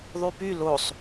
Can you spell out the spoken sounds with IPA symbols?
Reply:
ðˤypy losˤ

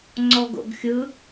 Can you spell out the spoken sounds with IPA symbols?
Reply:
ŋ͡ǀɔɡo̰ɡxʲɯ

